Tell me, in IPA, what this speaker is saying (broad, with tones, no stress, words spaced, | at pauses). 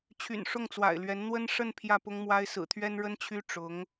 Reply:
t͡ɕʰy̰˨˩nʂʊ˥˩ŋt͡swa̰˨˩ɪ̯lɥɛ˧˥n n̪wə˥n ʂə˥˧n pʰjä˥˩pʊ˥ŋmwa˥ɪ̯ sɹ̩˨˩t̪ʰɥɛ˥n ɻə˥nt͡ɕʰy˥ ʈ͡ʂʊ˧˥ŋ